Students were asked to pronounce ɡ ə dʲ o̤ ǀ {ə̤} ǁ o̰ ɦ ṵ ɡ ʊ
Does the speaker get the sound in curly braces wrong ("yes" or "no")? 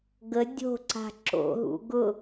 yes